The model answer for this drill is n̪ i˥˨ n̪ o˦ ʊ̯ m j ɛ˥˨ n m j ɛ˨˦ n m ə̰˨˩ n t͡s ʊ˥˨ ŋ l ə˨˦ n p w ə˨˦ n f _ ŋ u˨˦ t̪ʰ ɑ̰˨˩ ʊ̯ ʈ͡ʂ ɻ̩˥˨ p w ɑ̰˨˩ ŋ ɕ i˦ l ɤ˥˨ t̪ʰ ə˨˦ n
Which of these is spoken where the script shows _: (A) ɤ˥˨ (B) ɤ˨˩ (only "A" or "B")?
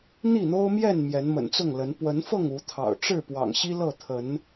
A